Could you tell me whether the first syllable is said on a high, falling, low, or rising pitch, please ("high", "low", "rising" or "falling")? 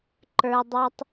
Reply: low